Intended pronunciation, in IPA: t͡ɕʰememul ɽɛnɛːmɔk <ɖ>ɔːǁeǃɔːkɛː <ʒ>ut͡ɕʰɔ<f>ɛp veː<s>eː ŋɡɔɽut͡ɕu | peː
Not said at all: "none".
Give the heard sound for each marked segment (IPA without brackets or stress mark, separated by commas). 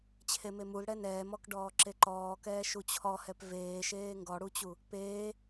ɖ, ʃ, h, ʃ